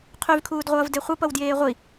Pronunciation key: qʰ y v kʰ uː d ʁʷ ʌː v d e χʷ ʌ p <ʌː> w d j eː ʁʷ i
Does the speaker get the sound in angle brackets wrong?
yes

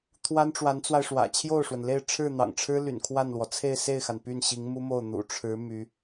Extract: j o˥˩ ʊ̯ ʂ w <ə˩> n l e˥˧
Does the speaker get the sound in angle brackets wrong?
no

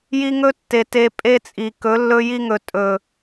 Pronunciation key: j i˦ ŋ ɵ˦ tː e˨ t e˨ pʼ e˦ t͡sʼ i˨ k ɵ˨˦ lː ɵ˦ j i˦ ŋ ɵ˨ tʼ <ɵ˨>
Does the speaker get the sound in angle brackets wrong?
no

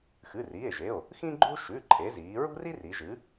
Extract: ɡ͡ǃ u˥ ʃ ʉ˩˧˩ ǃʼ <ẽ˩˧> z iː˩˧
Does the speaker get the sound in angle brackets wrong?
yes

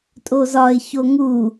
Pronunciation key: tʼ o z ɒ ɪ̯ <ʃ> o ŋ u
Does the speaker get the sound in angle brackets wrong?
yes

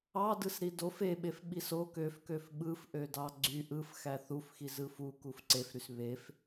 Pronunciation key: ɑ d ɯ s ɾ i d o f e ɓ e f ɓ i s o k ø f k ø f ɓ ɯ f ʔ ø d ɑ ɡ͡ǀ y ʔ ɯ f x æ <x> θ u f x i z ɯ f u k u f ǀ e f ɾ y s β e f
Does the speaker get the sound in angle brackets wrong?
yes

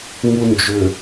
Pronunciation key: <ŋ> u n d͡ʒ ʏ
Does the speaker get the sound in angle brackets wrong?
no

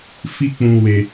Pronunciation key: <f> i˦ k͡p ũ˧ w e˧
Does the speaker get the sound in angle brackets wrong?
no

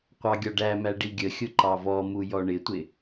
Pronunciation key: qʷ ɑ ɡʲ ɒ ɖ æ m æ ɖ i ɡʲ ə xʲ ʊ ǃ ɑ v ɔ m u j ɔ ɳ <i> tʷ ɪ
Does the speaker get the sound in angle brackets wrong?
yes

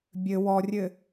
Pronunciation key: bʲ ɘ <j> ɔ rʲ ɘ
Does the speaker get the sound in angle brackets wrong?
yes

